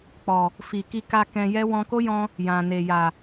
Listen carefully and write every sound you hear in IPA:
k͡pɔ˨ | fi˨ki˧ ka˧ kɛ̃˧jɛ˦ wɔ̃˧ko˦jɔ̃˧ | jã˨ne˨ja˨

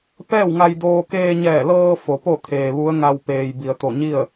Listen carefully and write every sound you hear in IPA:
pɛː˥˨wŋa˧jdoː˧ keː˧ɲɛː˧˩lɤː˧ fo˩˧po˥˨t̪ʰeː˩ ʋu˧˥ə̯ŋa˧wpeː˩j bi˩ə̯t̪o˧˩ɲi˥˨ə̯

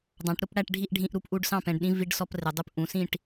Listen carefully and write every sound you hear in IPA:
dˤɑ̃˩˧ʈ ɾʊ˩˧p ɽæ˥˨ʈɖʱi˥˨ʔɖʱĩ˧˥˧ʔɾu˩˧p ʔu˥˨ɖsɑ̃˥˨pɛ̃˩˧ɖɗĩ˧˥˧ vi˧˥˧ɖ sɔ˧˥˧prɪ˩˧dˤu˧˥˧p ʔũ˩˧sĩ˥˨ʈ

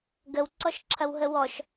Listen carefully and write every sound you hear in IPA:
ɡəw ǀɔʃǁʰɐwɦəwɔʃ

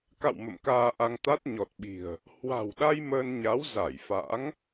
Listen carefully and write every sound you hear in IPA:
ka̰˧˨w mə̰˧˨mkaː˧ʔa˧ŋt̪a˦˥t̚ ɲɔ˨˩t̚ɓi̤˨˩ə̯ | hwa̤˨˩wɗa˧j məː˧nɲa˨˦w za˧˩jfa̰˧˥ŋ

